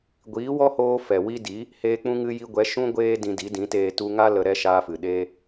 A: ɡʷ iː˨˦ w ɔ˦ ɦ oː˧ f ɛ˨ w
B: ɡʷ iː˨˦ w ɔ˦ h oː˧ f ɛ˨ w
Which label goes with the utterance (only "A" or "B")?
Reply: B